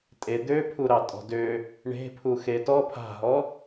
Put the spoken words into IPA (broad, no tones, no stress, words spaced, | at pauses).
tʼe d̪øpʰuɾɑ tʼɔ̤dø | ɳe̤pʰu xetɔ pʰa̤ɦɔ